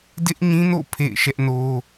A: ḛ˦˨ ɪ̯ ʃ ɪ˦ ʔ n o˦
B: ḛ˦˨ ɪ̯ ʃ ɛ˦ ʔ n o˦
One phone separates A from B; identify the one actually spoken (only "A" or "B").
B